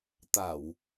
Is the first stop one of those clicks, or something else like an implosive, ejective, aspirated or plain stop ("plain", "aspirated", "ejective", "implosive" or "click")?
plain